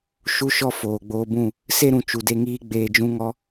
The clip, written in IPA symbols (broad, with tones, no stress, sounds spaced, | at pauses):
ʃ u˦ ʃ ɔ˦ f oː˨ ɡ͡b oː˧ b ũ˦˨ | s e˦ ɾ ũ˨ t͡ʃ u˨ d e˧ ŋ iː˦ ɡ͡b eː˧ d͡ʒ ũ˦ ŋ ɔ˦